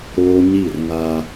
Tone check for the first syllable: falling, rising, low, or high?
high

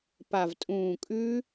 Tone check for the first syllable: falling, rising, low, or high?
low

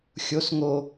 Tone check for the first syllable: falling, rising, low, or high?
low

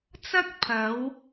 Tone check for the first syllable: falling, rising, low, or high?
high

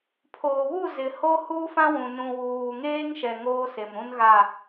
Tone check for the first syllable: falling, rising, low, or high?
low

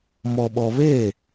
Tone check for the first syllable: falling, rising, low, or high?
low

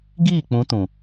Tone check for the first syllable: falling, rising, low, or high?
falling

